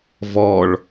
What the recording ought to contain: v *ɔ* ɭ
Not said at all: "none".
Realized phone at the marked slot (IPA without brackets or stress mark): ɔ